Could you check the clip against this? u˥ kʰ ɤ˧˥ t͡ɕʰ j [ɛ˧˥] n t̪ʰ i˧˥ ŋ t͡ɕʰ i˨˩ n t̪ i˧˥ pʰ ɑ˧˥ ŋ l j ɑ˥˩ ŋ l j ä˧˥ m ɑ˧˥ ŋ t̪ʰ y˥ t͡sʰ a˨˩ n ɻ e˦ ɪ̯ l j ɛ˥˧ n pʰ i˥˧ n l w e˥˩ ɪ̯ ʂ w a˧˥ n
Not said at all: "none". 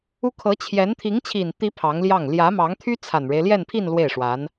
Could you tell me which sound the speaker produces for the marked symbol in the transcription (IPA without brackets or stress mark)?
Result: ɛ˧˥